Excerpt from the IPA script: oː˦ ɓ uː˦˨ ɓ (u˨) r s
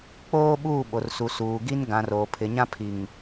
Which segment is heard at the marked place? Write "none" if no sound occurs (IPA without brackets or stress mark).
o˨